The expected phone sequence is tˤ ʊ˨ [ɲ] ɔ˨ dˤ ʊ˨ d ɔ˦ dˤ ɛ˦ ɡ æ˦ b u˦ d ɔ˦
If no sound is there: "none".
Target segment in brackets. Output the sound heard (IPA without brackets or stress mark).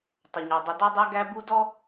ɲ